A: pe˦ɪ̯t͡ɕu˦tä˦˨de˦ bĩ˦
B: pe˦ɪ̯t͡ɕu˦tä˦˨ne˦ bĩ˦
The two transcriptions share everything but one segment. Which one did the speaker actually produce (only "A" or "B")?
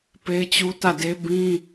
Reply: A